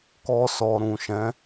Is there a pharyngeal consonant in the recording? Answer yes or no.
no